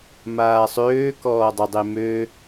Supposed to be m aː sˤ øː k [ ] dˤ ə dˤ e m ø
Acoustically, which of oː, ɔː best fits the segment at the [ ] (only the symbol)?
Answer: ɔː